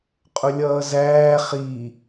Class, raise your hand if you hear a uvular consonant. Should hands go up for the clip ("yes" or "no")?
yes